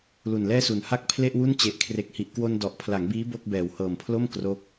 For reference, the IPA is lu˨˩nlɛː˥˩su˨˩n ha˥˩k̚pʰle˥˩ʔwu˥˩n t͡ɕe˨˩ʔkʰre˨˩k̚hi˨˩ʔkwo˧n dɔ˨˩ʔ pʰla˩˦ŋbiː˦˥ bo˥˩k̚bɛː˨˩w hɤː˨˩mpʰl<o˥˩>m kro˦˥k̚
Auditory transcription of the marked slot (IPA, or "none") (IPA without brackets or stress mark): o˥˩